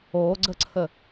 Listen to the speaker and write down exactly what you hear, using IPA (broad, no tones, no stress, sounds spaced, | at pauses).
o ɡ͡ǀ ə ǀʰ ə